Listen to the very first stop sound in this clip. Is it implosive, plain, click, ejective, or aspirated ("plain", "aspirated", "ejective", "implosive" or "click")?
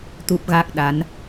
plain